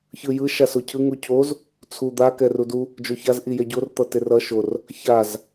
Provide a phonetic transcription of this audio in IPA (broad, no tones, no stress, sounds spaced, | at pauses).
ç ɯ j ɯ ʃ a s o cʰ ɯ ŋ u cʰ o z | t͡sʰ u d̪ a k ɛ r u d u | d͡ʒ o ç a z ʔ i j ɛ ɟ o r t̪ ʌ t e r ʌ ʃ o r | ç a z